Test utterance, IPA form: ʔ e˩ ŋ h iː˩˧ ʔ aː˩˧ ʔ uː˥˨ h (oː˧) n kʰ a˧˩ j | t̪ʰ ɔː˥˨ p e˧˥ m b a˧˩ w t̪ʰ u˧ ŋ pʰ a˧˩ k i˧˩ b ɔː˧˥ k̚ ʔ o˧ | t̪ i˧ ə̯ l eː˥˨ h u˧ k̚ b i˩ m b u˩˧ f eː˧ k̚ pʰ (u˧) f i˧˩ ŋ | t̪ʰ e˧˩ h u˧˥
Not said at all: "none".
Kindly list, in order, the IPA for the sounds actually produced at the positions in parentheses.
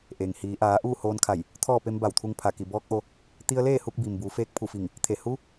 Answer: oː˧, u˧˩

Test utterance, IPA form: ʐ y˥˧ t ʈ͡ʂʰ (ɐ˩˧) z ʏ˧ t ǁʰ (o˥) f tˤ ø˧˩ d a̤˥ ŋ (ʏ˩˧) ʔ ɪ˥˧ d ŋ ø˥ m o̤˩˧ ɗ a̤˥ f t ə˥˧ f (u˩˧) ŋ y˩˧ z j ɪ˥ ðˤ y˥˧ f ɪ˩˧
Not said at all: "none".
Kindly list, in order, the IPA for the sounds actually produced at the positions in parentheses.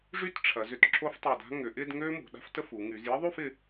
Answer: ɐ˩˧, o˥, ʏ˩˧, u˩˧

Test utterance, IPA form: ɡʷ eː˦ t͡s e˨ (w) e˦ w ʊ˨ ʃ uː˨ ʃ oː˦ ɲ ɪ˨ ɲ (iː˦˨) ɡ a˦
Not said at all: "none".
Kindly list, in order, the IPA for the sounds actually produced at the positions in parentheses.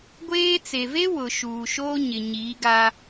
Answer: v, iː˨˦

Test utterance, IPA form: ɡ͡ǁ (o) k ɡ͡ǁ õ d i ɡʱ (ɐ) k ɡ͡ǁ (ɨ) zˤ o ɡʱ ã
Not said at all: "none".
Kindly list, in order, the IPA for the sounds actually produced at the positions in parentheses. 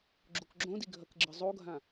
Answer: u, ɐ, ɨ

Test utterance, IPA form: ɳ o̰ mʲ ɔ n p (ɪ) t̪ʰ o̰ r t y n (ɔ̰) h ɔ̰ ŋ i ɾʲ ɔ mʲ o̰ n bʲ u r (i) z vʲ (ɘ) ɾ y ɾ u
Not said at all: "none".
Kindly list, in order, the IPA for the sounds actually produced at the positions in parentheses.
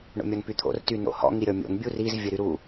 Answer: y, o̰, i, ɘ

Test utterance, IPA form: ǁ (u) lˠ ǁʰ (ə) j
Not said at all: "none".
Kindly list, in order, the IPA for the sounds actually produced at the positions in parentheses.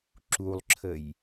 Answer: u, ə

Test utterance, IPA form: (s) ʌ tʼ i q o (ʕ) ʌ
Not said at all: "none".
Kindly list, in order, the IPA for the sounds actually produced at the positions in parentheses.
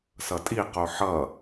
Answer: s, ħ

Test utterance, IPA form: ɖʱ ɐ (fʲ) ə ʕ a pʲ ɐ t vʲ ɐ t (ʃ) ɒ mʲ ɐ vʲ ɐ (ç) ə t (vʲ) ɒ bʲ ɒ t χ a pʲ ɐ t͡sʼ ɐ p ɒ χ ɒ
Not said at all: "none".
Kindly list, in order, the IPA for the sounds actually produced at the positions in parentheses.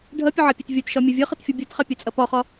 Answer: pʲ, ʃ, χ, fʲ

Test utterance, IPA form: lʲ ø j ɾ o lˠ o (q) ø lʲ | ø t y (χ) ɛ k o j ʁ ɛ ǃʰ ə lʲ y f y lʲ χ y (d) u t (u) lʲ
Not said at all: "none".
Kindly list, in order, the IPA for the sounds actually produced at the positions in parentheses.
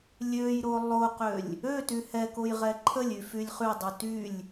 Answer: q, h, dˤ, y

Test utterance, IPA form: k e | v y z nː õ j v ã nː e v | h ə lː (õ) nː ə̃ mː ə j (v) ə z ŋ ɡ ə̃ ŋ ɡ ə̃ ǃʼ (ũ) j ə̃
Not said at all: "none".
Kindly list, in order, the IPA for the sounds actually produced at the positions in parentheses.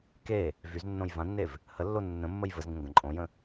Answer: o, v, õ

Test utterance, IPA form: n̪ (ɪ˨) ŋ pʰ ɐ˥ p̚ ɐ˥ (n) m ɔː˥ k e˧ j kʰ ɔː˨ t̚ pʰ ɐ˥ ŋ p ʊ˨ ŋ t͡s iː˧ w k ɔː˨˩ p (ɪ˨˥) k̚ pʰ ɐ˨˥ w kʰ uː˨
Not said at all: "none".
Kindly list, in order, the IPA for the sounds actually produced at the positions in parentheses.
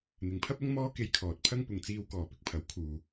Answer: ɪ˨, ŋ, ɪ˧

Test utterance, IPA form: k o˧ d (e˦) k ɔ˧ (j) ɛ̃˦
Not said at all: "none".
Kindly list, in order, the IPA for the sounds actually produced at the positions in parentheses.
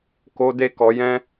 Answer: e˦, j

